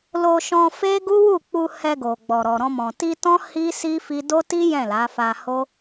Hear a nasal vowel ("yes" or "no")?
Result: yes